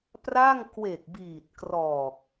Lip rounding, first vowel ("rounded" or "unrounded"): unrounded